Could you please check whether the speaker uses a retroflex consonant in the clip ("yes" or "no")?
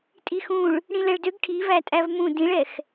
yes